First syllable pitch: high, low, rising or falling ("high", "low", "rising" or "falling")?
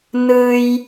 high